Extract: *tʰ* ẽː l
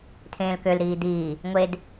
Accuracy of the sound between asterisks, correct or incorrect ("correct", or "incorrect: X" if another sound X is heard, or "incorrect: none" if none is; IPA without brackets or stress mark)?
correct